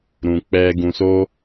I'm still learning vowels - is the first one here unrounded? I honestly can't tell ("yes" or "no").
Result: no